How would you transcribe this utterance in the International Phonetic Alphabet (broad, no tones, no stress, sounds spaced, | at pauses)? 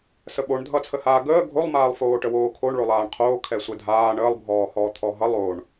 s ə ɓ o ɳ dʱ ʌ t͡sʰ ə h aː ɡ əː ɡʱ o lˠ m aː lˠ f oː ʈ ə w oː kʰ o ɳ ɭ o lˠ aː ɳ qʰ oː kʰ ɛ sʷ ɛ dʱ aː ɳ əː lˠ bʱ ɔː h ɔː t̪ʰ ɔ ɦ ʌ lˠ o ɳ